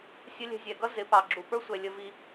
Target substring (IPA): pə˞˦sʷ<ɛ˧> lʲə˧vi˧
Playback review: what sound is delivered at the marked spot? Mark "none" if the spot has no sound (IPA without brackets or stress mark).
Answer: ɛ˨